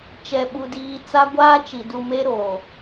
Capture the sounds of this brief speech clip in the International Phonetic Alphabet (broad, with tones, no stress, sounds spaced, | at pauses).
t͡ʃ ɛ˨ ɓ u˨ d iː˨ t͡s a˦ ɡʷ aː˦ t͡ʃ i˨ d u˨ m e˦ ɾ oː˨